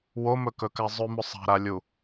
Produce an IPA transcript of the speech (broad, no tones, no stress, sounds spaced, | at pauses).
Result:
w o m ɵ k ɵ k a zˤ ʉ m ɵ sˤ a̤ ɾ a lʲ u